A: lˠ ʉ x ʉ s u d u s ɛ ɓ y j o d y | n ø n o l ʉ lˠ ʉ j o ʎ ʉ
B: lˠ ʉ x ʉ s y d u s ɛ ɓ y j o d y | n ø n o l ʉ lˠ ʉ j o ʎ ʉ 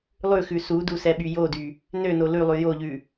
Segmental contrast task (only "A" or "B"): A